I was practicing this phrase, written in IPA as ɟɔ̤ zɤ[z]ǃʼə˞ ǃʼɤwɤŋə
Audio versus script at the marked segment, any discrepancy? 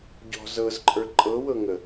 no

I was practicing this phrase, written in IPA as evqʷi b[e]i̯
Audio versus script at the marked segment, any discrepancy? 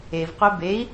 no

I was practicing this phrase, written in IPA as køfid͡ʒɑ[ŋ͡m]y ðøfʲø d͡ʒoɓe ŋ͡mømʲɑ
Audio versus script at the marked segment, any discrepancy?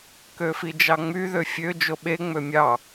no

